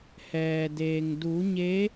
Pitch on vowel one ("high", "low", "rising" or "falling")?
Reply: low